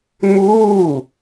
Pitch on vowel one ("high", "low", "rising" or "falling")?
falling